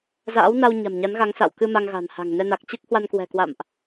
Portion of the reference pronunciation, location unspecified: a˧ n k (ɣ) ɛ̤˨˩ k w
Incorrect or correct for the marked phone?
incorrect: w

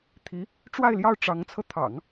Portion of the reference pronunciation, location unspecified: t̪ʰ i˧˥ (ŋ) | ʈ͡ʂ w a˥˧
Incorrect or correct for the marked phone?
incorrect: none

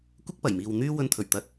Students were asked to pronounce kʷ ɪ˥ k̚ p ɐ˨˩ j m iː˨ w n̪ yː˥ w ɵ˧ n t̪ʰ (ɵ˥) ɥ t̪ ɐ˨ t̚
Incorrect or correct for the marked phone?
incorrect: ɵ˨˩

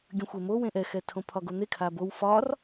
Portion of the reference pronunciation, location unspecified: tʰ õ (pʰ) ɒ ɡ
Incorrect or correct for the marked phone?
correct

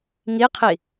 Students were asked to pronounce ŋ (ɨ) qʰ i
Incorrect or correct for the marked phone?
incorrect: i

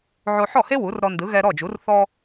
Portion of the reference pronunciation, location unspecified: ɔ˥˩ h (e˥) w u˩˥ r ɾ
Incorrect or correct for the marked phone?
correct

